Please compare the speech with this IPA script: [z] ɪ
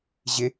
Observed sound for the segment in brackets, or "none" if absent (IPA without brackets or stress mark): ʑ